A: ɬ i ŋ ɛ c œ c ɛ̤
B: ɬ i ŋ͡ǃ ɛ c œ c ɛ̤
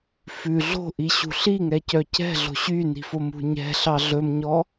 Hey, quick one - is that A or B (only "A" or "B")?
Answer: A